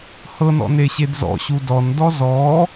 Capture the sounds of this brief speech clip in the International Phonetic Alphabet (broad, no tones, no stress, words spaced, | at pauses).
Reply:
hɤnɔ̰ neɕedzɔ̰ɕu dɔndɔ zɔ